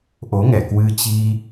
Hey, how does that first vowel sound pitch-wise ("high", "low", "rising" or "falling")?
rising